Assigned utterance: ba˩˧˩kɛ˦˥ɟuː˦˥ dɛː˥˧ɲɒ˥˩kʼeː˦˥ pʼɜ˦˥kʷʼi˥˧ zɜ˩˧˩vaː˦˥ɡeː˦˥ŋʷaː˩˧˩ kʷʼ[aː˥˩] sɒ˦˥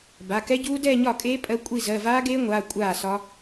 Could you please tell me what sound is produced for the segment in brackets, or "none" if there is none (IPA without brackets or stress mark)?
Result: aː˥˩